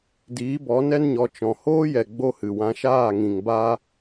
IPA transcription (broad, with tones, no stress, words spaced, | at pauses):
diː˨˦bɔ˨˦nɛ˦nɲɔ˧ t͡ʃɔ̃˨ hoː˦jɛ˨ ɡ͡bo˦hɨ˨ wã˧ʃaː˦˨ŋĩ˨ŋbaː˦